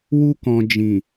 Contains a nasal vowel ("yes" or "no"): yes